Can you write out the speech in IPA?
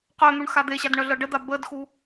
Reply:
qœn̪uɳ xad̪eɕad ɳœɮɤɖəd̪a bədxu

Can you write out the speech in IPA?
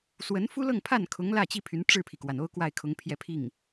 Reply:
swə˧˥nfu˥lɤ˥˧ŋ pʰa˥˩nkʰʊ˧˥ŋlä˥˩ t͡ɕi˥pʰy˧˥n ʈ͡ʂɻ̩˥˩pʰi˩kwa˩n o˥ʊ̯kwa˥˩ɪ̯kʰʊ˧˥ŋpʰjɛ˥˧ pʰi˥˩ŋ

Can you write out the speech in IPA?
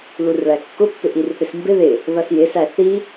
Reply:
lurɭækːʊpːɪ ʔirθɪsmbɪ ðɪ | ðʌsjɪsæ θi

